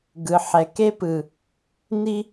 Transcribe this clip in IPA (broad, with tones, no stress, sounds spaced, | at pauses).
ɡ ɯ˨ ħ ɛ˨ k e˦ p ɯ˨ | n i˦